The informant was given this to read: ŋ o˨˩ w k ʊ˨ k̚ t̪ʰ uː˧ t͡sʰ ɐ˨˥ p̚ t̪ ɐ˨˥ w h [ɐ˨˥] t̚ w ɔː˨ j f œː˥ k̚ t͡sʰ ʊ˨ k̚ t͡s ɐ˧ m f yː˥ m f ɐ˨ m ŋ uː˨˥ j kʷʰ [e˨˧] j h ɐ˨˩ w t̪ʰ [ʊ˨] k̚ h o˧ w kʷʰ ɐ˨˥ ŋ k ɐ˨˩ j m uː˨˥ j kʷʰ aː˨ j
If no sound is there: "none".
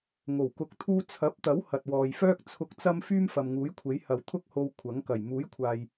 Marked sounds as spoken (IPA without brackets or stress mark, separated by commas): ɐ˨, e˨˥, ʊ˥